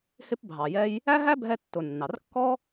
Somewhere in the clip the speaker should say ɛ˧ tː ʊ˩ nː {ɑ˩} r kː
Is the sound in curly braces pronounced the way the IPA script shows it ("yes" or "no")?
yes